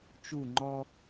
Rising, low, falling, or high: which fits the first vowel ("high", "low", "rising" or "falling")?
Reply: falling